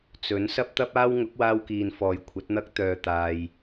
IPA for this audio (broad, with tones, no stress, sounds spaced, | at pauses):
t͡s ɵ˨˥ n s ɐ˥ p̚ t̪ ɐ˥ p̚ aː˥ w ŋ ʊ˨˥ k̚ w aː˧ w k iː˨ n f ɔː˨ j kʷʰ ɐ˨˥ t̚ n̪ ɐ˥ k̚ t̪ œː˧ t̪ aː˧ j